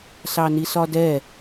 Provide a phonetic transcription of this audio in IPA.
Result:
s ɑ n i s ɒ d ɛ

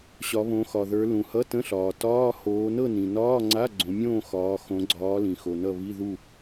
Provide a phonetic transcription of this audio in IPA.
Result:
ɕ ɒ˨˦ β õ˨˦ x ɒ˨ ð ə˞˨˦ l ũ˨ h ʌ˧˥˧ t ə̃˧˥˧ ɬ ɒː˨ t ɒː˧˥˧ h oː˨˦ n ɤ˥˨ n ĩ˨ n ɒː˧˥˧ ŋ͡ǀ a˧˥˧ ɡ͡ǀ õ˨˦ mʲ õː˥˨ x ɒː˨˦ x õ˨˦ ɡ͡ǀ ɒː˨˦ l ĩ˨ x o˨ n ʌ˥˨ β i˧˥˧ ð u˥˨

